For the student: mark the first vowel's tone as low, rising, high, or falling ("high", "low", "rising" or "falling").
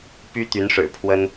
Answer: high